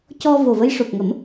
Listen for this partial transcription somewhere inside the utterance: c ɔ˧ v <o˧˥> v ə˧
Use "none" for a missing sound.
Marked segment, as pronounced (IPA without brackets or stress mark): o˨˩